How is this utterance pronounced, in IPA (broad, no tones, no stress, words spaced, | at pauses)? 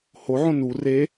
hoʕõ nu re